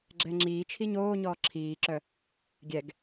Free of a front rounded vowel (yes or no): no